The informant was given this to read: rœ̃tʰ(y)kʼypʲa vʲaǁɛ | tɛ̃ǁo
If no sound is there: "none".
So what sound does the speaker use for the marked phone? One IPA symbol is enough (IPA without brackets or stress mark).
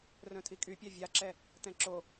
i